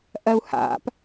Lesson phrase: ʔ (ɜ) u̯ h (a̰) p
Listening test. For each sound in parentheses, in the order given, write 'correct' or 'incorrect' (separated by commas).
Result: correct, correct